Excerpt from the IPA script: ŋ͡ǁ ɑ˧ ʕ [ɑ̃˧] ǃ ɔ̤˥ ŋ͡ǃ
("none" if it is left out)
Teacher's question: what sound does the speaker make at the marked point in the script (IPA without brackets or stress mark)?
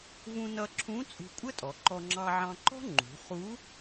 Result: ɑ̃˧